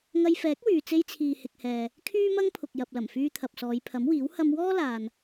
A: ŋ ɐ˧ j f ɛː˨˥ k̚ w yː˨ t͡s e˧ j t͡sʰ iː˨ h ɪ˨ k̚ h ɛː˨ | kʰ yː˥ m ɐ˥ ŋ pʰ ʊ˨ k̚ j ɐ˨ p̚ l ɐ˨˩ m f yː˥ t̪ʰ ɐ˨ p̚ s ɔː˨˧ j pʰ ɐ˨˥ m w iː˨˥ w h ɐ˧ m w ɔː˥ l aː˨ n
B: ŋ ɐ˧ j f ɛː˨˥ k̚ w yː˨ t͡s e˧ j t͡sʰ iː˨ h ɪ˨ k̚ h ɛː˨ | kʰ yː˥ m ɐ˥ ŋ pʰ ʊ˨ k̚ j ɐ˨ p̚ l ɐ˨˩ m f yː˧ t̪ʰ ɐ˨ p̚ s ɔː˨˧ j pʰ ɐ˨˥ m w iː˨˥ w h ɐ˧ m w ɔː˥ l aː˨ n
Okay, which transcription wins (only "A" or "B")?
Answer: B